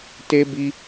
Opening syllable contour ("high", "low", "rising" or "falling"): high